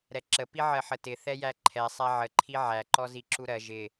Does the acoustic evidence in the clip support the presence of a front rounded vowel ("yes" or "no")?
no